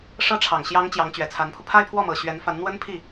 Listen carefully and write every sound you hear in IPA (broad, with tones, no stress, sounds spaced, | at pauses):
ʂ ɤ˥ ʈ͡ʂʰ ɑ˨˩ ŋ ɕ j ɑ˧˥ ŋ t͡ɕ j ɑ˧˥ ŋ t͡ɕ ɥ ɛ˨˩ t͡sʰ a˧˥ n pʰ u˧ pʰ a˥˧ ɪ̯ pʰ w ɔ˥˩ m ɤ˨˩ ɕ ɥ ɛ˧˥ n f a˧˥ n n̪ w ə˥ n pʰ i˥˩